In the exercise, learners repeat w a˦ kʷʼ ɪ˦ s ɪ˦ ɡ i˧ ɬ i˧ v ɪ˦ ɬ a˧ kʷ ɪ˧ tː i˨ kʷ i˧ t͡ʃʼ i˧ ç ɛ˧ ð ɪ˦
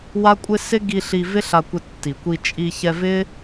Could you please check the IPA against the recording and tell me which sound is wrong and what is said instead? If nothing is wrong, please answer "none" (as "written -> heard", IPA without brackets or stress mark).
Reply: ð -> v